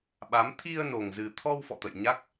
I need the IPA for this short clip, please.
ɓa˨˦m t̪ʰi˧ə̯no˨˩ŋzɨ˨˩t̪ʰɔ˧w fɔ̰˧˨t̪ə̰˧˨jɲa˦˥k̚

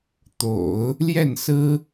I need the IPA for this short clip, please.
t̪o̰˨˩˦ʊ̯ | ljɛ˥˩nsɹ̩˥

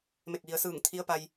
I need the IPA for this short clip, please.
me˧˩k̚ʋi˩˧ə̯sɯː˧˩ŋ t̪ʰi˧˥ə̯pa˧j

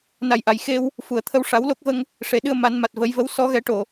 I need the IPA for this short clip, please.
na˨˩jʔa˨˩˨j xe˧w | fu˨˩˨ə̯t̪ʰə˧w ʂa˨˩˦wlo˦˥k̚və˧ŋ | ʂe˨˩ɗɨ˧ə̯ ma˨˩˦nma˨˩t̚ və˨˩˦jvə˧˥w sɔ˧ɣɛ˨˩˦ʈo˨˩˨

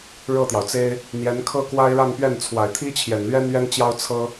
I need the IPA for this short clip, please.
ɻɤ˥˩t̪jɑ˩ʊ̯t͡se˥ɪ̯ | n̪jɛ˧˥nkʰɤ˥kwa˥ɪ̯ ɻa˥˧npɥɛ˥˩nt͡sʰwa˨˩ɪ̯t̪ʰi˥ t͡ɕʰjɛ˨˩nlɥɛ˥nɥɛ˥nt͡ɕjɑ˥ʊ̯ t͡sʰɤ˥

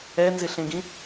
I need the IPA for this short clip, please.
ɛnzɪɬẽɡĩ

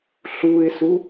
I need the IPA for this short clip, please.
ɬuɪ̯su

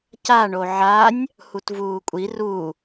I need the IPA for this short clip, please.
caɳo ʕanʲ | hutvuːkʷʼi ru

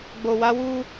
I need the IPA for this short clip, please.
ɡ͡bo˨wa˨˦wu˦

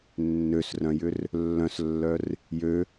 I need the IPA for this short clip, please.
nːøsrœ̃jʏr | lːœ̃slːœr | jø

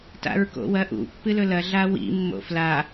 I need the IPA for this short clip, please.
ta̰ɹko̰wɐʔṵ pːɨlɵlɐ ɮawḭ mːo̰fla

